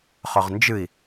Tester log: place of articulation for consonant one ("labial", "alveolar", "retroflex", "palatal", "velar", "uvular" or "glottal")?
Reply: uvular